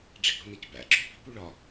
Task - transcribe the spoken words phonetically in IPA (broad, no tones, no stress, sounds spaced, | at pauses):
ɖ͡ʐ e̤ ɡ ɽ o̤ n i c b æ̰ ǁ o̤ p i̤ p u ɭ ɒ